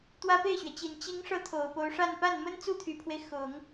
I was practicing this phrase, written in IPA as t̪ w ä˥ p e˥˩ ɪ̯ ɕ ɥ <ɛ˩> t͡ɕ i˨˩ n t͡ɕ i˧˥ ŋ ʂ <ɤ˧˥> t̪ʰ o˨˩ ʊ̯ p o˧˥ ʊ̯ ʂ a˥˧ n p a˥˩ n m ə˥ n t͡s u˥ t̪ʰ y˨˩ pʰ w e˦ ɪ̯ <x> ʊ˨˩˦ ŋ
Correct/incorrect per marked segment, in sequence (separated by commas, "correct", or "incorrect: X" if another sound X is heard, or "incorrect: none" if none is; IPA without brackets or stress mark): correct, correct, correct